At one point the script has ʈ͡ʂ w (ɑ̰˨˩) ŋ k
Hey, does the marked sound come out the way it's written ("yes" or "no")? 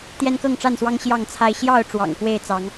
yes